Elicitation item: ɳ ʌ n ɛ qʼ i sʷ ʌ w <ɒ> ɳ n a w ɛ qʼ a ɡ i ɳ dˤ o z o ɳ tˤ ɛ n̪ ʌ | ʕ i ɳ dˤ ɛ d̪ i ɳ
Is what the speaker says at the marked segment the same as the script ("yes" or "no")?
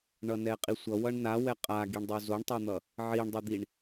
no